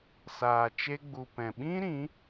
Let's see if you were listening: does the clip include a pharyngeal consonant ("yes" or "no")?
no